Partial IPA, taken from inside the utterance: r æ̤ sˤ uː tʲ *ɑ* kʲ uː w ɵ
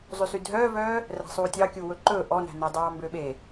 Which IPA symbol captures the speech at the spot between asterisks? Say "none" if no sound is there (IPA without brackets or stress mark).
ɑ